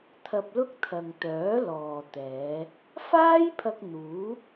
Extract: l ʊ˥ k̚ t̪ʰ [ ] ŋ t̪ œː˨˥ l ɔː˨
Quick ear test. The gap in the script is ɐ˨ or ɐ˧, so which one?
ɐ˨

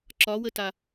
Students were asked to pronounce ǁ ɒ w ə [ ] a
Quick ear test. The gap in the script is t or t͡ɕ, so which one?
t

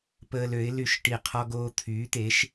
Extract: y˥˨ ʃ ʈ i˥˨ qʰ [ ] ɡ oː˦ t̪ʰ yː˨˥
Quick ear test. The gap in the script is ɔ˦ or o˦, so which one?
ɔ˦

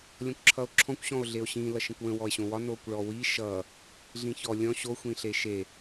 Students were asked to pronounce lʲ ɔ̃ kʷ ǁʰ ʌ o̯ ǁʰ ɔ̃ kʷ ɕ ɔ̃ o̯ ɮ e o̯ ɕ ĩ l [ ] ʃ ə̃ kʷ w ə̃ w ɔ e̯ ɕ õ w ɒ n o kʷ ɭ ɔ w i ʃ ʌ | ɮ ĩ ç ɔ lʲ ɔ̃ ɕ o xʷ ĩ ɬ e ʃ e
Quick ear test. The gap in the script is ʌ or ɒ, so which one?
ʌ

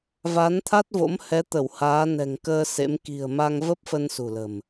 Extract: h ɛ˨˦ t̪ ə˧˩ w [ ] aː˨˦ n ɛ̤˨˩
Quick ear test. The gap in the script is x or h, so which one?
h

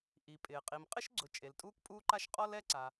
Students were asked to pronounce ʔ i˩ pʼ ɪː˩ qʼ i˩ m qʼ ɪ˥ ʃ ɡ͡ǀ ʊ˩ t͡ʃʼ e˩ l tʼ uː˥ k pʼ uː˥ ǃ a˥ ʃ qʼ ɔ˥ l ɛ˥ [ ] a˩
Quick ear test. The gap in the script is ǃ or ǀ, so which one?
ǀ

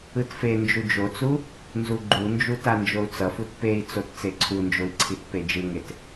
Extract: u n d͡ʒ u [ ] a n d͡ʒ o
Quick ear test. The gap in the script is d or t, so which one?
t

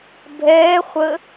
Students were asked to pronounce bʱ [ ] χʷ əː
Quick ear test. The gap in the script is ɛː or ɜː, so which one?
ɛː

